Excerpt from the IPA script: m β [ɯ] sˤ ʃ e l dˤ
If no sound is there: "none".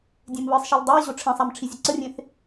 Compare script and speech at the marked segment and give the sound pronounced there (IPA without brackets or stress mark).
ɯ